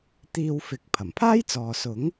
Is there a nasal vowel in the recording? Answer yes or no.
no